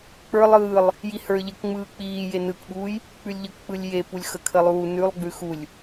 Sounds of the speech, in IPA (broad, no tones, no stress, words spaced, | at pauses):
k͡pə˞ lˠɯːlˠ | jihə˞ ʎəkŋ͡mɯː k͡piː jenɯkɓuːj | k͡pʉlʲʎək k͡pɯlʲjepulʲ xəkʰəlˠuː nʉlˠ ɡ͡bʉxulʲ